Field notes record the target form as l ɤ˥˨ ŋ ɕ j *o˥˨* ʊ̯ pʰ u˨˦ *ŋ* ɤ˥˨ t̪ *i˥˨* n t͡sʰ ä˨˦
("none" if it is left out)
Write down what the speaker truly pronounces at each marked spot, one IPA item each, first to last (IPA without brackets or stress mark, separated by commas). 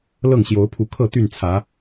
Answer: o˨˦, kʰ, y˥˨